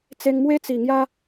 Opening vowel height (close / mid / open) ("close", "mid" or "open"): mid